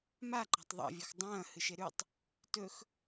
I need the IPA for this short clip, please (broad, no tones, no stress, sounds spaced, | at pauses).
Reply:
m a ǃ a̤ tˤ ðˤ a̰ vʲ ɵ x dˤ ɐ̃ː h ɨ ʃ e ɾ ʉ tˤ | t ɵ x